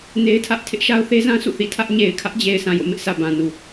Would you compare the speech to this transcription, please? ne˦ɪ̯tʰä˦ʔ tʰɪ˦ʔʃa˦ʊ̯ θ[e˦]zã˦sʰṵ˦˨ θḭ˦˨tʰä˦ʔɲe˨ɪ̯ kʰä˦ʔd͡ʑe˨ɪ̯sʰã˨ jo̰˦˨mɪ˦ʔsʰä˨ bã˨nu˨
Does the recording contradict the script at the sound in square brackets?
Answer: no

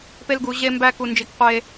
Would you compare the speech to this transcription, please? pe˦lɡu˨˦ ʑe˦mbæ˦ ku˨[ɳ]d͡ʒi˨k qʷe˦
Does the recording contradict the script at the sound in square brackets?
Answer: yes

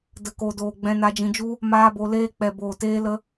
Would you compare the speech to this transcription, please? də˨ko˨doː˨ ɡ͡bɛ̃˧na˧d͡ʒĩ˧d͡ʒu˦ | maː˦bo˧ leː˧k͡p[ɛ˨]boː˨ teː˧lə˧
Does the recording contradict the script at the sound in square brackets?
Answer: no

